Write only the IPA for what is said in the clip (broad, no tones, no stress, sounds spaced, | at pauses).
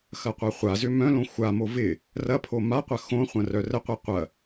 x ɐ qʷ ɐ χʷ a z ʏ m œ̃ l õ xʷ a m o v ɪ | r ɐ pʰ o m a qʷ ɐ x õ χʷ ɐ̃ r œ r ə qʷ i qʷ ɐ